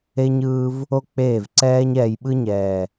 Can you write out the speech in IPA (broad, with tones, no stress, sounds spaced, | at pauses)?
e˧ ɲ ɯː˧ v | o˦ k͡p eː˦˨ v ǀ ɛː˧ ɲ ɛː˨ j ɓ ɯ˦ ɲ ɛː˨